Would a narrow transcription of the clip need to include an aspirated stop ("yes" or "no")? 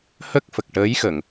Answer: no